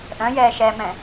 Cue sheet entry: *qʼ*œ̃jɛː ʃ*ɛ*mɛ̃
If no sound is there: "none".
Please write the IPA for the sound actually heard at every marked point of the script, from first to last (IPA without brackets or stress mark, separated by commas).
ʔ, ɛ